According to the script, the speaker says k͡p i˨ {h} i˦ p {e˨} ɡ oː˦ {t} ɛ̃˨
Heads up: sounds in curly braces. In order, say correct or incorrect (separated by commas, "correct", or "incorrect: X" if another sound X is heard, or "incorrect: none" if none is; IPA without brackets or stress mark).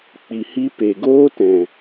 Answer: correct, correct, correct